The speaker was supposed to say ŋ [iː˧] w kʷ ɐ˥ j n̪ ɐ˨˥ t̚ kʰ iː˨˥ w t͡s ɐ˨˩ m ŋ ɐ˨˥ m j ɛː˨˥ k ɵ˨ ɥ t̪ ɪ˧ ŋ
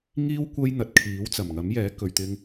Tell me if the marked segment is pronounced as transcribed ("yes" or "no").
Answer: no